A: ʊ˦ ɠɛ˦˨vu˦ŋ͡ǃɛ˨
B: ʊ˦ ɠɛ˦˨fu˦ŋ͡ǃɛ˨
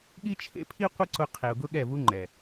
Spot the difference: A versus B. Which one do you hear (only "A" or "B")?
A